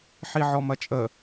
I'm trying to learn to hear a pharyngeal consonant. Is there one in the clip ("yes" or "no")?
yes